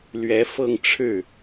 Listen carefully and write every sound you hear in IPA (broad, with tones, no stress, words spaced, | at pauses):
lɥɛ˧˥fɤ˥˧ŋʈ͡ʂʰɻ̩˥˩